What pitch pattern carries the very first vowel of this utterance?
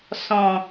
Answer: low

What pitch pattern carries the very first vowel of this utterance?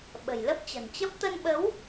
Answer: low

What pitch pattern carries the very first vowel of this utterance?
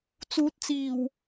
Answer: rising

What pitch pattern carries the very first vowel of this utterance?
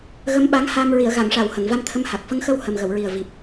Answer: rising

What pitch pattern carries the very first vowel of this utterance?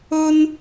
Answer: high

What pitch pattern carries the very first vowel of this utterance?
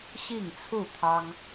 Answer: falling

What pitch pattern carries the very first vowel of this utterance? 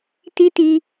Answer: high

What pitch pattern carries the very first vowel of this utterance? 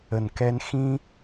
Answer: low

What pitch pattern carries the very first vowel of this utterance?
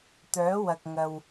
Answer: rising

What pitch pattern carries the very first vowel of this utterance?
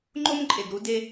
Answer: high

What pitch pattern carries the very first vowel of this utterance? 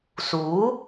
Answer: rising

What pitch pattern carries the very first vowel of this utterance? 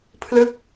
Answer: falling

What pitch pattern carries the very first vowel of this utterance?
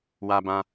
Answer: high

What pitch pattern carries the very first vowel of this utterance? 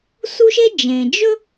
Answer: high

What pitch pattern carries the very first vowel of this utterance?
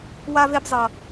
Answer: high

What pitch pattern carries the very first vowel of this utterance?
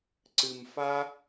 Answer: low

